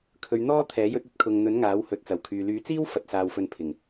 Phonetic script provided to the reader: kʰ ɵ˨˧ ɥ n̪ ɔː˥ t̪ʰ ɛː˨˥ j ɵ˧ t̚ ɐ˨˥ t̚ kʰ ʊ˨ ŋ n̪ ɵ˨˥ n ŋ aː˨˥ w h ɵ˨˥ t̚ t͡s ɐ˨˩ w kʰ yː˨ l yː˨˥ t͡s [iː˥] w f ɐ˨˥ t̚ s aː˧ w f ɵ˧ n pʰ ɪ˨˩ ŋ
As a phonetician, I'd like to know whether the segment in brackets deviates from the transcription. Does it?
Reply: no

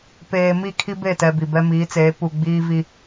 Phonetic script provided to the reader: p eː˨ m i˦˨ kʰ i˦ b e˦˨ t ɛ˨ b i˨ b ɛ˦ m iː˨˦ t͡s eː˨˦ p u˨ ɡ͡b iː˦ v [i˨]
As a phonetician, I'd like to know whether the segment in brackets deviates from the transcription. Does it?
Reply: yes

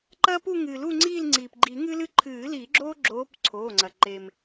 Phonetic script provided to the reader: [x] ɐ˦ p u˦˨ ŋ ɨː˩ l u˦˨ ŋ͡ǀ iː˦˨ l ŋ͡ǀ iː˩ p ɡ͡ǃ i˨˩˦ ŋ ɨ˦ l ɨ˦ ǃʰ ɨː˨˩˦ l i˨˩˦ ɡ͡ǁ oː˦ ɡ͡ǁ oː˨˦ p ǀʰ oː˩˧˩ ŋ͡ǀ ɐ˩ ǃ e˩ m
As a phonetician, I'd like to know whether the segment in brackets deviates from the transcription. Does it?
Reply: yes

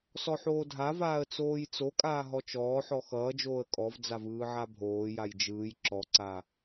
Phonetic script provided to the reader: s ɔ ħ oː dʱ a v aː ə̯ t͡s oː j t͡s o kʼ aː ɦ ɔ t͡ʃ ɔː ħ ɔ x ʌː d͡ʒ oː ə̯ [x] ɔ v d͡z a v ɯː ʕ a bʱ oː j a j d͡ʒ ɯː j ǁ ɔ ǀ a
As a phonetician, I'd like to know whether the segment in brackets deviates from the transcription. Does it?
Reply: yes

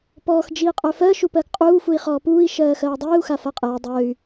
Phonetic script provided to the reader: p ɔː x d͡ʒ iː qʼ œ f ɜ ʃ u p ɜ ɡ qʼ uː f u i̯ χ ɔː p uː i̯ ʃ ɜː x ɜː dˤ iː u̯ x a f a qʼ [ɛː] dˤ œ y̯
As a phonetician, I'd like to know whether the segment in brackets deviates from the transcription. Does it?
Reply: no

